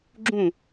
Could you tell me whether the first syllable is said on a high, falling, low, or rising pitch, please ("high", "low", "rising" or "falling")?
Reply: falling